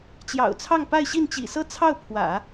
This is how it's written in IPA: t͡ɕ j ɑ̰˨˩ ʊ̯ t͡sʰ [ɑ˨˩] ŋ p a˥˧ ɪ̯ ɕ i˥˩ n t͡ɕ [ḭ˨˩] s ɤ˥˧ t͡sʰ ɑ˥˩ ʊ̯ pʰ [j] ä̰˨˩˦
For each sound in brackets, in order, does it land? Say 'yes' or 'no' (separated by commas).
no, yes, no